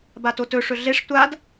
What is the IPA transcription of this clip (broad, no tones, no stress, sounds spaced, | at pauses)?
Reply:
b a t o t ɵ ʂ ɵ ɮ e ʂ tʷ a d